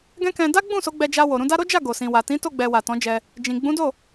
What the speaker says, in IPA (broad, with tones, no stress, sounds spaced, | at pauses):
ɡ ɛ̃˦ k ɛ̃˧ d a˦ ɡ͡b ũ˦˨ s o˨˦ ɡ͡b ɛ˧ d͡ʒ a˧ w o˨ ɾ ũ˧ d a˦ ɾ o˦ d͡ʒ a˦˨ ɡ o˨ s ĩ˨ w a˨ t ĩ˨˦ t o˦˨ ɡ͡b ɛ˨ w a˨ t ɔ̃˨˦ d͡ʒ ɛ˧ | d͡ʒ ĩ˨ ɡ͡b ũ˨˦ d o˦˨